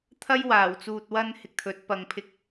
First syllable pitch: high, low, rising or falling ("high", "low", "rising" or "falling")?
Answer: high